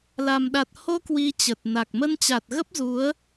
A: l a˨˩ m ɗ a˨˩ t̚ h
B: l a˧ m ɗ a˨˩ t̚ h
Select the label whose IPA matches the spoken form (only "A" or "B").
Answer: A